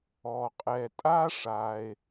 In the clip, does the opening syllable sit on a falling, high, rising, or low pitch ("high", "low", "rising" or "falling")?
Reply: low